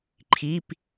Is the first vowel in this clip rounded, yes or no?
no